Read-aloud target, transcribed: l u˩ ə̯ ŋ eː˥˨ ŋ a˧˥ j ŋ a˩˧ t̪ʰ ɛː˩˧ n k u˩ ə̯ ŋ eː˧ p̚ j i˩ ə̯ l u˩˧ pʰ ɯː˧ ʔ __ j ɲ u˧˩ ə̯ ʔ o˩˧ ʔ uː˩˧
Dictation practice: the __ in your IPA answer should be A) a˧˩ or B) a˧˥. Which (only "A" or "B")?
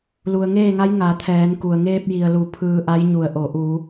B